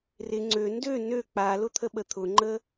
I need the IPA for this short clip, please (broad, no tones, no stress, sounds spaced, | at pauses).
r ɪ ŋ͡ǀ ø n d ø n ø k͡p a l ʊ t̪ʰ ə ɓ ə t̪ʰ ʊ ŋ͡ǃ ə